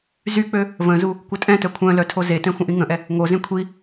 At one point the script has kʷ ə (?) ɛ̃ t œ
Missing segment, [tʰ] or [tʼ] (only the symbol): tʼ